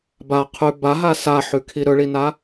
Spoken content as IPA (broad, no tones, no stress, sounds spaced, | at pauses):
b a qʰ ʉ b a ɦ a s a ħ ʉ kʰ i ɾ ɵ ɭ i n a